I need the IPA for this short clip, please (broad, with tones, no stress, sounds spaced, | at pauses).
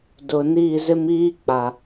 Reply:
d ʊ˨ n iː˦˨ z ɪ˦ m iː˦ k͡p a˨